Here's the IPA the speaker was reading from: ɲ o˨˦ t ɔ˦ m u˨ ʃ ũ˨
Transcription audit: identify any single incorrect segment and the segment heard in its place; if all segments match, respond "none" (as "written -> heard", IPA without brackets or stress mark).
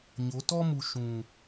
none